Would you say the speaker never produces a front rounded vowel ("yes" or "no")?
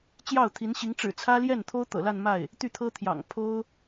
no